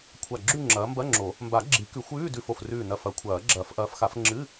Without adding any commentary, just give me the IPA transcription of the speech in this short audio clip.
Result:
kʷʰ a˧˩ ɡ͡ǁ ʉ˥˧ ŋ͡ǁ ɐː˨˦ m b ɐ˧˥˧ ŋ͡ǁ o˨˩˦ | m b a˨˩˦ ɡ͡ǁ i˨˩˦ k ʉ˨˩˦ xʷ ʉː˧˥˧ d ʉ˧˩ f o˧˩ f r ʉː˧˩ n ɐ˧˩ f ɐ˨˩˦ kʷʰ ɐː˨˩˦ ɡ͡ǁ ɐː˨˩˦ f ʔ ɐː˨˦ f x a˨˩˦ f ŋ͡ǁ ɨ˧˥˧

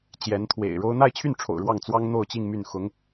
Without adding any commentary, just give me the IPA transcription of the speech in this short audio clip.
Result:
t͡ɕ j ɛ˧˥ n t̪ʰ w ḛ˨˩ ɪ̯ ɻ o˥ ʊ̯ n̪ a˥˧ ɪ̯ t͡ɕʰ y˥˩ n ʈ͡ʂʰ o̰˨˩ ʊ̯ ɻ w ɑ˥˩ ŋ t͡s w ɑ˥ ŋ n̪ o˥˧ ʊ̯ t͡ɕ i˥˧ ŋ m y˥˩ n x ʊ˧˥ ŋ

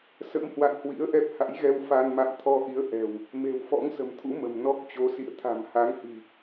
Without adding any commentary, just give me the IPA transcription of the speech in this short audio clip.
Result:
s ə̰˧˥ m h w a̰˧˨ n h w ḭ˧˥ ə̯ ʔ ɛ˦˥ p̚ h a̰˧˥ j ɣ ɛ˧ w f a˧ n m a̰˧˨ m t̪ʰ ɔ˧ ʔ i˨˦ ə̯ ʔ ɛ̤˨˩ w | m e̤˨˩ w f ɔ̰˧˥ ŋ s ə̤˨˩ m t̪ʰ ṵ˧˥ m ə̤˨˩ m n ɔ˦˥ k̚ t͡ɕ o˨˦ s ḭ˧˨ ə̯ t̪ʰ a̤˨˩ m h a˨˦ ŋ h i̤˨˩

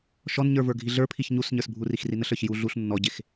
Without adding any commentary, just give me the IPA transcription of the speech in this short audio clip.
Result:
ʃ ɔ n ɲ ə˞ v ə˞ ɡʱ i ɮ ə˞ pʰ i ç ɲ u s ɲ ə˞ s bʱ u r i x r i n ə ɬ ə˞ ç j u ɮ u ɬ nː ɔ ɟ e x

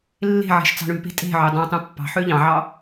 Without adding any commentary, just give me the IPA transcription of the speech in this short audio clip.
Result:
lː e̤ ʕ e̤ ʃ t͡s ɑ̤ ɳ ʉ p e̤ tʼ e̤ ʕ ø dˤ ɑ̃ tˤ ũ pː ɑ̤ ħ ø ʎ ɑ̃ ʕ ɑ

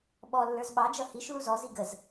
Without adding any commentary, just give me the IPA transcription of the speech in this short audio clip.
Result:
ɓ ɔ lː ə˞ z ɓ ɑ d͡ʒ ʌ h i ʃ l u z ɔ z i ɡ ə z

